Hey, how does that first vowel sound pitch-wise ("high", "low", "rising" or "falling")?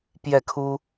falling